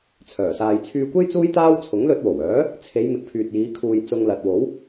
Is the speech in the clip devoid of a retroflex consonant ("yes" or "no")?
yes